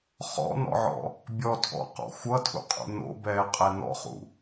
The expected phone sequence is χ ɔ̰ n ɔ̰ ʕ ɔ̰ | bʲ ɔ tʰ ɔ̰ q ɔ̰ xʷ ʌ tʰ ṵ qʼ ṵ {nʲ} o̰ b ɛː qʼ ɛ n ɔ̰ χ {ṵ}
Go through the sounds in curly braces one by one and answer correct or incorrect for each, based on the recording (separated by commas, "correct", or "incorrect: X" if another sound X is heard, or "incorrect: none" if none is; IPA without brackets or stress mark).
incorrect: n, correct